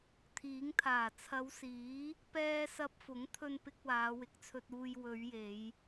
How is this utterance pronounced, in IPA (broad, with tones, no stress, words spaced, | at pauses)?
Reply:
t̪ʰiː˨˥ŋt̪ʰaː˨˩ t͡sʰɐ˨˧wsiː˨˥ | pɛː˧ sɐ˧p̚fʊ˨˥ŋ t̪ʰɵ˧npɪ˧k̚ waː˨˧wɪ˨˥k̚t͡sʰɵ˧t̚uː˧j wɵ˨˧ɥje˨˧j